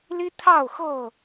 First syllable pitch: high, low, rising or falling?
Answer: high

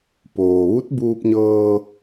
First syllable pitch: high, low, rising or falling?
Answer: low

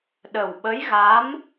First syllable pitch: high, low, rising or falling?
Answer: low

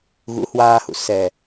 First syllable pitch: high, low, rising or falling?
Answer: rising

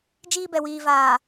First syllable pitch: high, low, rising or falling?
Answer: high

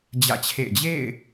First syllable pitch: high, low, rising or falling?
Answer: falling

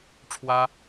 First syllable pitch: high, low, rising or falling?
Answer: high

